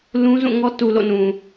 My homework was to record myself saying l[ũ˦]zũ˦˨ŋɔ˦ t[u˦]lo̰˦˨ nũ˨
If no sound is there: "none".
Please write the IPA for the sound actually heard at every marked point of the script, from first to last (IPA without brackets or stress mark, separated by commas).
ũ˦, u˨